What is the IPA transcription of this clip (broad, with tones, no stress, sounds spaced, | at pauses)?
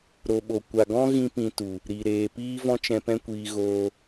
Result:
ɾ o˨ ɓ o˨ kʷ a˨ ɡ ɔ̃˦ ɣ ĩ˦ p ĩ˧ t u˨ | ɾ i˨ ɾ eː˨ p iː˦ v ɔ̃˦ t͡ʃ ɛ̃˧ p ɛ̃˦ kʷ iː˧ ɣ oː˧